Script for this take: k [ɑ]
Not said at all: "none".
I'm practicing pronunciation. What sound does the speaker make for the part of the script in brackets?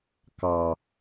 ɑ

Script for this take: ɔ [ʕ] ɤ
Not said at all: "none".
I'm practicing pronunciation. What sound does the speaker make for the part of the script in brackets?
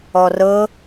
r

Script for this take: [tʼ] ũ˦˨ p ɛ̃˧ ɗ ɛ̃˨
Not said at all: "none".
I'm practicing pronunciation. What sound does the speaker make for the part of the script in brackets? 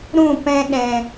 ɾ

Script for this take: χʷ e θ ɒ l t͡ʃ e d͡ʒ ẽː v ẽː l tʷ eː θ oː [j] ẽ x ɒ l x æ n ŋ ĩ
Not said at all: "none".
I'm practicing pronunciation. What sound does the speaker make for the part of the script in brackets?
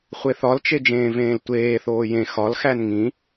j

